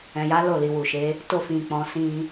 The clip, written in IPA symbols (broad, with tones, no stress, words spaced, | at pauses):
ɛ̃˨ja˨˦ lo˦˨li˨wu˨ʃe˨˦ | to˧fĩ˨k͡pɔ̃˨ sĩ˧